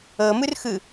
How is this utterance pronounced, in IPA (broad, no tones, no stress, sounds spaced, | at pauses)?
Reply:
ɤ m ɯ r x ɯ